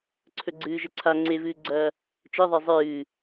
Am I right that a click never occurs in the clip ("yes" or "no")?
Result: no